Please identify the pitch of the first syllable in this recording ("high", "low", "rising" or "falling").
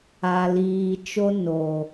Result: low